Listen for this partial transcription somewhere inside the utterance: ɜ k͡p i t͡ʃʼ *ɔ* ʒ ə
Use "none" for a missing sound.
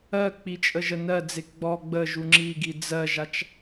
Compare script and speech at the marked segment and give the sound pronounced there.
ə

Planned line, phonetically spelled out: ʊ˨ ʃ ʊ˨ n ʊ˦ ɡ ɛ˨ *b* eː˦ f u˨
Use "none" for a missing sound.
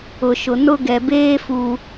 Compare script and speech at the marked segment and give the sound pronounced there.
b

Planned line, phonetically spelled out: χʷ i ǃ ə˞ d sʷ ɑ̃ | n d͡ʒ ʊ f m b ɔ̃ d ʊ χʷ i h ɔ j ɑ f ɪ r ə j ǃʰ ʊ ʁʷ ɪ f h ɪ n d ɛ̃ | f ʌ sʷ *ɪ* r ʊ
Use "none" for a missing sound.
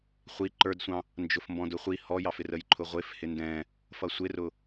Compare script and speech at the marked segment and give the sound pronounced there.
ɪ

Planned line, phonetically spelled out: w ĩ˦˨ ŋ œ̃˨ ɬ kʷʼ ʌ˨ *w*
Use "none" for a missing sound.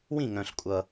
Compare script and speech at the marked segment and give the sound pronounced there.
none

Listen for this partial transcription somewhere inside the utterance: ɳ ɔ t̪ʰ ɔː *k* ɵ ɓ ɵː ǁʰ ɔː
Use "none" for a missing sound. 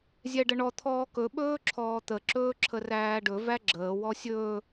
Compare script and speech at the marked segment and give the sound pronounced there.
k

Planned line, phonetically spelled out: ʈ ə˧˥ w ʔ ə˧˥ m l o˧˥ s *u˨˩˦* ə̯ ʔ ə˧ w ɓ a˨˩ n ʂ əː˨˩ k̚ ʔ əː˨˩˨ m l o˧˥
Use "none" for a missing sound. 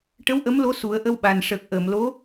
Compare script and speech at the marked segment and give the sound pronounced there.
u˨˩˦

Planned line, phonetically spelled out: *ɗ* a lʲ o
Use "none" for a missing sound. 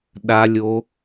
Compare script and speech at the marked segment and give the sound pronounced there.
ɗ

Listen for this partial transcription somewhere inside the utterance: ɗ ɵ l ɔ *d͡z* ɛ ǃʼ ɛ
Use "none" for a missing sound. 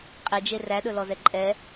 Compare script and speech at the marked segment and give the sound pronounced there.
z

